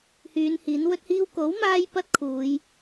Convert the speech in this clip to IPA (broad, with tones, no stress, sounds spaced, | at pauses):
h yː˨˧ n h iː˨˥ n w ɵ˥ t̚ h iː˥ w k o˨˥ w m aː˧ j p ɐ˥ t̚ kʰ uː˨˧ j